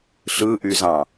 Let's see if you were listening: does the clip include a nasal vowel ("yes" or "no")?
yes